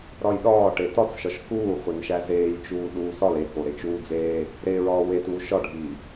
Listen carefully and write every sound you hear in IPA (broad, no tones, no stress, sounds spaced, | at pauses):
ɾ ɒ j ɗ ɒː ʈ e t ɒ t͡s ʃ ɒ ʃ k uː χʷ e n ʃ æ z eː j t͡ʃ uː ɗ uː s ɒ l e k o ɾ e t͡ʃ uː d͡z eː | ɾ e ɹ ɒː w e t uː ʃ ɒ ɖʱ iː